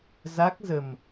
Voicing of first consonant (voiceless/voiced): voiced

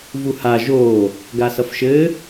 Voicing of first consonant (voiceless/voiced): voiced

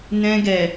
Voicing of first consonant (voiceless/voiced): voiced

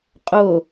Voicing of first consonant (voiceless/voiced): voiceless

